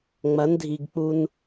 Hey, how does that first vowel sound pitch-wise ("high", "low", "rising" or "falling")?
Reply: rising